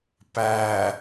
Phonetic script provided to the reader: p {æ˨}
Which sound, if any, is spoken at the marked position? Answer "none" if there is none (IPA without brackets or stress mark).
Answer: æ˨